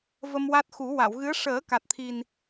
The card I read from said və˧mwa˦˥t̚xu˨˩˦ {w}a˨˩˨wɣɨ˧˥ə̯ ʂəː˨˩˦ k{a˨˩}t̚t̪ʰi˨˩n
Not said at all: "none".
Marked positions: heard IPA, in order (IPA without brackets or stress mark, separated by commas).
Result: w, a˨˩